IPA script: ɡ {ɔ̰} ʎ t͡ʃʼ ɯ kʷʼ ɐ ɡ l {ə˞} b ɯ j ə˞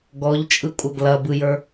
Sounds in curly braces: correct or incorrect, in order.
incorrect, incorrect

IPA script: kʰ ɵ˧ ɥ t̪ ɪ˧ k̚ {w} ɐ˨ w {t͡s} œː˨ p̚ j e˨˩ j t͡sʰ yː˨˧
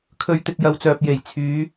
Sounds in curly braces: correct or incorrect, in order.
incorrect, correct

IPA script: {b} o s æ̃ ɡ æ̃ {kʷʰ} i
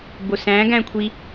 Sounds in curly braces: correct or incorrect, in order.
correct, correct

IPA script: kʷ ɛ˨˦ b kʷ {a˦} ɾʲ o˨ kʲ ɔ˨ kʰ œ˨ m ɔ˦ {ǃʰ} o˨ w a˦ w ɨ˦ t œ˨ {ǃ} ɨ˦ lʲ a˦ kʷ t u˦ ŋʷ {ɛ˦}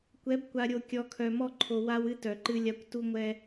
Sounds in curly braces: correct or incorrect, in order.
incorrect, correct, correct, correct

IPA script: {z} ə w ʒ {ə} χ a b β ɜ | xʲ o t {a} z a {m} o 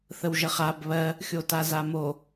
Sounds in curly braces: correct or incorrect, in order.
incorrect, correct, correct, correct

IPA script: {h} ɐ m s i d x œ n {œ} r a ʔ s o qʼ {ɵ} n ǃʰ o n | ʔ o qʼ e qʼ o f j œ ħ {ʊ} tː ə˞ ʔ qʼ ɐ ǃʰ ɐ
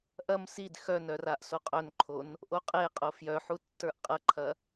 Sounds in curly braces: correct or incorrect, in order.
incorrect, correct, incorrect, incorrect

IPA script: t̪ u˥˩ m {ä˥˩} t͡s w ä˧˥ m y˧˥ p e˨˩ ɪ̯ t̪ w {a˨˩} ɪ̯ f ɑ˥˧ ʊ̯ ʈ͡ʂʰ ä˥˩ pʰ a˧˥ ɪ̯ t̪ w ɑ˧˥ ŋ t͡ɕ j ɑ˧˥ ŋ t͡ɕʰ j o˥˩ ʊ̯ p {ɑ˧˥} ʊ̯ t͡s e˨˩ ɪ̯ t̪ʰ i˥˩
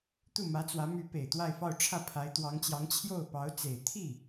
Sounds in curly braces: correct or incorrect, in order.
incorrect, incorrect, correct

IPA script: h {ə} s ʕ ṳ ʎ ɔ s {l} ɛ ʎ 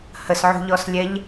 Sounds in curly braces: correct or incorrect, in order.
correct, incorrect

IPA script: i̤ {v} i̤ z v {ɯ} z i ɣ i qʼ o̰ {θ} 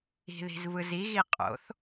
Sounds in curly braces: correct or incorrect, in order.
incorrect, correct, correct

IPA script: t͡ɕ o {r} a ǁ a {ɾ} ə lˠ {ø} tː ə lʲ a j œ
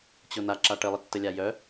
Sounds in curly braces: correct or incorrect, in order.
incorrect, incorrect, incorrect

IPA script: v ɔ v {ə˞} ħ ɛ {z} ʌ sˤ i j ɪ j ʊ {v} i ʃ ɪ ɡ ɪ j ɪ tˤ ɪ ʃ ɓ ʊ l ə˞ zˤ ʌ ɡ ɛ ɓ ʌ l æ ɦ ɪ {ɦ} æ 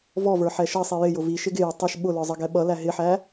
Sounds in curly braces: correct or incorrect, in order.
correct, incorrect, correct, incorrect

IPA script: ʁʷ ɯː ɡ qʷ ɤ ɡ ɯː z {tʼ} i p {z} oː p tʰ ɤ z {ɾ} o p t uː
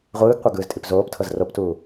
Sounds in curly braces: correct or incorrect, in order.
correct, correct, incorrect

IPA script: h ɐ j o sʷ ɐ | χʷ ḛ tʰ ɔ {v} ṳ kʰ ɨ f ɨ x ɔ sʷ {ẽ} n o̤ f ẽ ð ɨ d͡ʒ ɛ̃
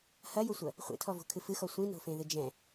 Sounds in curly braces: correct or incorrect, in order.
correct, incorrect

